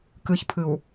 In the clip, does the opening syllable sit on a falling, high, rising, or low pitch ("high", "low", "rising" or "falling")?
low